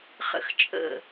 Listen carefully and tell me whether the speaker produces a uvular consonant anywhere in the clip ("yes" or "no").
yes